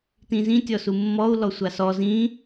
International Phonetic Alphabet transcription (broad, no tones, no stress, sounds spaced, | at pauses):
t ĩ z ĩ tʲ ɔ s u mː ɔ u̯ l ɔ sʷ a s ɔ z ĩ